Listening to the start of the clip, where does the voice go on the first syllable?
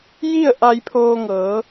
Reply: falling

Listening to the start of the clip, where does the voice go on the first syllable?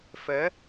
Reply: rising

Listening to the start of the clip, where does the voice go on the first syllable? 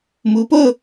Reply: rising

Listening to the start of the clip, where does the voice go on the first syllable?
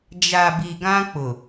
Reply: low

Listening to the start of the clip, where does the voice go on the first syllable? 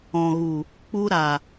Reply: low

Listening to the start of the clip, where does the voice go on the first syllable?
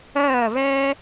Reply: falling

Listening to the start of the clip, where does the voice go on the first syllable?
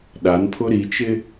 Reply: rising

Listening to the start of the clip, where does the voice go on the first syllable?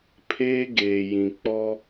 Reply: high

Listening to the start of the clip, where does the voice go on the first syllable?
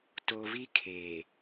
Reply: low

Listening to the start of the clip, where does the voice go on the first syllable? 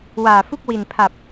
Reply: low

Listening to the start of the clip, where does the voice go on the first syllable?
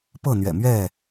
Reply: falling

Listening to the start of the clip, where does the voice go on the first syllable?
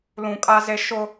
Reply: low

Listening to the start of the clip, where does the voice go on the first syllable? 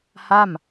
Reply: falling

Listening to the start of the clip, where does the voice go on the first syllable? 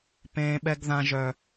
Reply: high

